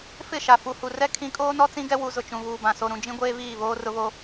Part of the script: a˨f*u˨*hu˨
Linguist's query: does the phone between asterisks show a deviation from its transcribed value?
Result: no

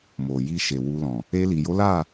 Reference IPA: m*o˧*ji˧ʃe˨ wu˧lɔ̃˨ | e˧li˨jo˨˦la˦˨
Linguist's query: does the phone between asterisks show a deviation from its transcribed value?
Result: yes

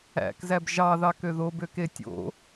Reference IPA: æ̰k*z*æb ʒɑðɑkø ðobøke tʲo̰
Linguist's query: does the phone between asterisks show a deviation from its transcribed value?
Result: no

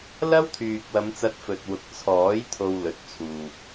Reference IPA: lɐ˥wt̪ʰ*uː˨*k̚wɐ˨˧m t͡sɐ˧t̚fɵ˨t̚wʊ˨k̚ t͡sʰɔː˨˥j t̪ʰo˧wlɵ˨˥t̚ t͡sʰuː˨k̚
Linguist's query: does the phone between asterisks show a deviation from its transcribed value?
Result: yes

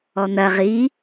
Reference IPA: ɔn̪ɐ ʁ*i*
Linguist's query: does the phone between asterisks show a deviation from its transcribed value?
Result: no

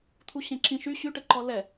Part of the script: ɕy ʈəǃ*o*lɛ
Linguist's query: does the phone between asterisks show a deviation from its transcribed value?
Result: yes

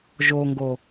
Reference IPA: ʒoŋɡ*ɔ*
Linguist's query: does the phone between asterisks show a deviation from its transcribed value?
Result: yes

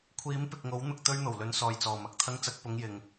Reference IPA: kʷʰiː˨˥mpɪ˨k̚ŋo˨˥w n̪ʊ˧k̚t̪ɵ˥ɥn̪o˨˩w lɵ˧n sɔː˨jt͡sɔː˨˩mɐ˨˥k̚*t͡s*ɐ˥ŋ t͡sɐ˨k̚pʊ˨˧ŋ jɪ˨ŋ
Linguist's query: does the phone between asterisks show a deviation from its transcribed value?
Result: yes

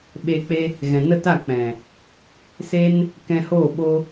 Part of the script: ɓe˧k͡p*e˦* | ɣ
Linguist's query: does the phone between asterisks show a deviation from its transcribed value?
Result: no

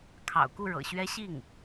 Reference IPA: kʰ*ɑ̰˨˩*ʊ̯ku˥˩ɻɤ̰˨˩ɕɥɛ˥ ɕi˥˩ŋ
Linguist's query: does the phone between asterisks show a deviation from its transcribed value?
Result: no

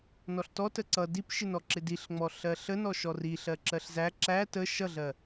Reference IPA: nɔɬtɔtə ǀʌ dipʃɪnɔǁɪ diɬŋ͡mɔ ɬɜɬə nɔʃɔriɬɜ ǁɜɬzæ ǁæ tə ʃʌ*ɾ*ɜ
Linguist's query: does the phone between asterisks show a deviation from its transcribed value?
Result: yes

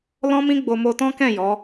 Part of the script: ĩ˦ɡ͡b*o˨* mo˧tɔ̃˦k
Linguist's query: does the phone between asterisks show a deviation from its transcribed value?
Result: yes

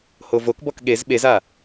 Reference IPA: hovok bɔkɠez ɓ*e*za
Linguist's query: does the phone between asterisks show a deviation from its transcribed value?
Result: no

